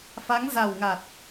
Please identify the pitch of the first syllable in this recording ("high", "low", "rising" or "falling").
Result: rising